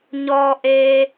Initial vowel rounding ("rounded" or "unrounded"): rounded